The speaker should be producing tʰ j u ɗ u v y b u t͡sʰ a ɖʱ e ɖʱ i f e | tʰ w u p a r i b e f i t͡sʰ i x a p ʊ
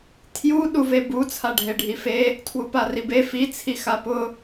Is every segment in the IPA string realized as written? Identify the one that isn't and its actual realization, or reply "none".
y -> e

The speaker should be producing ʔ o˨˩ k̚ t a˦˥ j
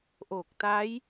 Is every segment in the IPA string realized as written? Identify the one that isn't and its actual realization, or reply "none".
none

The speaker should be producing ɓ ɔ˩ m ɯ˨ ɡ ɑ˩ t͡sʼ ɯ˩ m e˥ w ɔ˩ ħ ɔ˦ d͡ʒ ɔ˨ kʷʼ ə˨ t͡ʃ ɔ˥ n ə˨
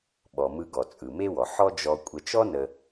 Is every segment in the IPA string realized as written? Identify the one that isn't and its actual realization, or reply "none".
ɑ˩ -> ɔ˩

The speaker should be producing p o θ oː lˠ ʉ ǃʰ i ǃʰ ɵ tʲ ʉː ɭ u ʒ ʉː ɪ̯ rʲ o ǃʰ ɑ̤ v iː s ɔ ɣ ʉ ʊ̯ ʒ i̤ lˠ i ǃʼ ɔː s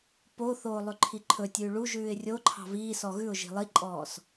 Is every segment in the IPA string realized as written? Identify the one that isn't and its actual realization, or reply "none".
none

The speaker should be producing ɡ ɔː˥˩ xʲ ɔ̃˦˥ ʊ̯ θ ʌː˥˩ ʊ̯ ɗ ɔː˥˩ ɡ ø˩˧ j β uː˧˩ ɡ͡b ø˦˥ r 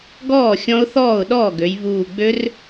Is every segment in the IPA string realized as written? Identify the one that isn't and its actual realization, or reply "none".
ʌː˥˩ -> ɔː˥˩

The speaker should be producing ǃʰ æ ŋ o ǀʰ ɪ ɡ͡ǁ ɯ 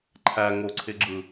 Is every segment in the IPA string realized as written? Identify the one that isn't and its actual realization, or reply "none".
none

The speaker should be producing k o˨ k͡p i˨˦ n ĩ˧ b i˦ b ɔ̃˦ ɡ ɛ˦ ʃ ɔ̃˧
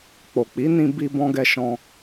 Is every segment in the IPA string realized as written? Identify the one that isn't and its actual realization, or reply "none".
k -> k͡p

